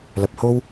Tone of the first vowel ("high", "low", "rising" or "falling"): low